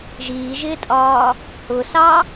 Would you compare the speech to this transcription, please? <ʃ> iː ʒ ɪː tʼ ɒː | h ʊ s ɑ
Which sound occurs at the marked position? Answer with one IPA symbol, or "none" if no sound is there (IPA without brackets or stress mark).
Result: ʒ